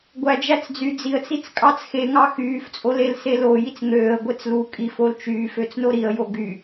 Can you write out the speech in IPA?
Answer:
ɡʷæd͡ʒæt͡sd͡zy d͡ziə̯t͡sit͡s kʼɑt͡sxeŋɑ xyːft͡sʼolelse lo jit͡sŋøːə̯ ɡʷet͡slu kʼif olt͡ʃyːf øt͡snoɾiə̯jo ɡy

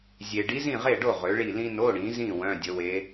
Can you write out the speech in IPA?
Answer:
zʲe˨ ɖi˧˥zĩ˥˨ʁe˥˨ɖo˥˨ ʁø˩˥ɭi˥˨ lĩ˥ no˧˥˧ɽĩ˩˥zĩ˥˨ wœ̃˧˥˧dʲə˧˥we˧˥

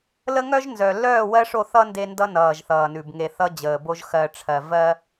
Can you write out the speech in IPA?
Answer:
lə˦ŋœ˦ʒnzœ˨ lœː˦˨wɜ˦ʂo˦˨ θʌ˦ nde˦ndʌ˦ nʌː˨ʒθʌː˨nʉ˨b ŋe˨ θʌ˦d͡ʑəː˨bo˦ʒ xɜ˨ʈ͡ʂʰɜ˨vɜ˦

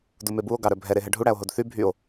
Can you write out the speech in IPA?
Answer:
dumebuo̯ ɡɑɾœbʱɛ ɾeɦɛɖʱu ɽæo̯ɦodθy bʱyo̯

